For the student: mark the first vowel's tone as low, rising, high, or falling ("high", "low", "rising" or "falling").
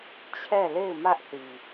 falling